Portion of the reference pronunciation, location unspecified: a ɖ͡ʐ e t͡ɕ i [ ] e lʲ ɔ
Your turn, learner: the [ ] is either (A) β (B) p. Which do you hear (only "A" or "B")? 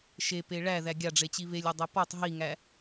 A